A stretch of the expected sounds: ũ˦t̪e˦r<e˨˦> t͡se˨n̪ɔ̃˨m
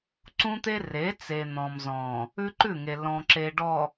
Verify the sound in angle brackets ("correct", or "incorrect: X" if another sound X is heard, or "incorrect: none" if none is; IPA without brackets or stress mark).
correct